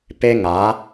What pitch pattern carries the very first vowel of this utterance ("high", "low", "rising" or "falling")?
high